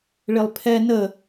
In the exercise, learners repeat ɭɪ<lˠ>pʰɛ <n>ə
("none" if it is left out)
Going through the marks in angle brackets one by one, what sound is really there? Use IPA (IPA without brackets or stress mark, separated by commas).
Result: lˠ, n